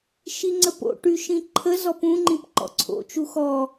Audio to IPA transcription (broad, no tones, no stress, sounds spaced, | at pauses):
ʃ i ŋ͡ǀ ə p o̰ ʈ y ʃ ĩ ǃʰ ə z ɔ p ũ ŋ͡ǃ ĩ p ǃ ɔ̰ ǀʰ o̰ t͡ʃ u x ɔ